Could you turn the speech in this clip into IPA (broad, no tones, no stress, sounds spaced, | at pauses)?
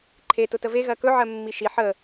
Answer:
ǃʰ e t ʊ t ə v e ɣ ɜ k ɵ ʕ ɜ mː i ʃ i ħ ə